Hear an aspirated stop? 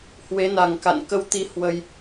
no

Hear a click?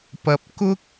no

